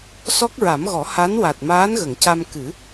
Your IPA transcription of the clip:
s ɔ˦˥ k̚ ɹ a˨˩˦ m ɣ ɔ˨˩˦ h a˧˥ n w a˨˩ t̚ m aː˧˥ n ɣ ə˨˩˨ ŋ c a˧ m k ɨ˨˩˦

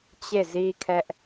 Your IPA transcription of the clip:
t͡ɕ e˦˨ z i˦ kʰ ɛ˦ ʔ

